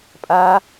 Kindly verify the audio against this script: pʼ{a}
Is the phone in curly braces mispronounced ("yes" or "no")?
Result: no